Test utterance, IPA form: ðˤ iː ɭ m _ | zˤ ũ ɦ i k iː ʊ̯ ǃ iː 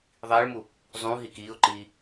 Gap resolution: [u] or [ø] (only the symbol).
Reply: u